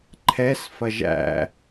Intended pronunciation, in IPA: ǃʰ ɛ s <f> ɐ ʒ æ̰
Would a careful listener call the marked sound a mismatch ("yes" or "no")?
no